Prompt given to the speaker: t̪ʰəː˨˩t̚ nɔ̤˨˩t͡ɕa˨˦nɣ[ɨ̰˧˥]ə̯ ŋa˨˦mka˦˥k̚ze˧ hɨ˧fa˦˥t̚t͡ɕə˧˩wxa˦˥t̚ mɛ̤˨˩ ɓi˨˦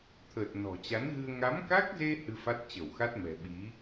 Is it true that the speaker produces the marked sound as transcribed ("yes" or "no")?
no